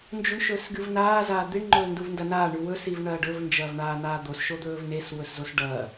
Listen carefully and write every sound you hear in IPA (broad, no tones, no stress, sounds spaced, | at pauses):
n d͡ʒ u ɳ ʃ ɵː s ɡ ɨ v n aː z aː d̪ i ɳ ŋ͡ǃ ɵː n d u v n d ɐ n aː ɳ ʉ w ɵ s i v ɳ ɐː ɖ ɵ v n d͡ʒ ɐː v ɳ aː n̪ aː d̪ o s ʃ o d̪ ɵː v n e s w ɵ s z o s ɖ ɐː